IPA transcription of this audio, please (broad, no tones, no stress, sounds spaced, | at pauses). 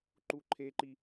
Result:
ǃ u ǃʰ e ǃ i